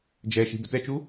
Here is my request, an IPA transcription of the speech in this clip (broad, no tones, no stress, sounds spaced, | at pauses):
d͡ʒ ɛ ʃ i̤ b ə̤ t ɛ t͡ʃ u